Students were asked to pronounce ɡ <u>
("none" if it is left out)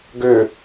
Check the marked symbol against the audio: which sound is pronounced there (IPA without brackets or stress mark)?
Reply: ʏ